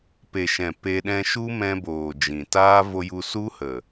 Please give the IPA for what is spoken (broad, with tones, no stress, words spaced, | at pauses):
pe˨ʃɛ̃˨ pe˧ɗɛ̃˧ ʃu˦mɛ̃˧boː˨ d͡ʒĩ˨taː˦ vo˧ju˧ su˦hə˨